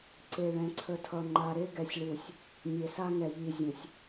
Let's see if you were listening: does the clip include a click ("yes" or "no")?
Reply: yes